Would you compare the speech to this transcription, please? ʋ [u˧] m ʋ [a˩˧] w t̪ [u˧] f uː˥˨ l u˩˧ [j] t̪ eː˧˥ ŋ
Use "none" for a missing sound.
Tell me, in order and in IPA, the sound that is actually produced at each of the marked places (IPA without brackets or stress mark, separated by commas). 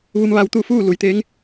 u˧, a˧, u˥˨, j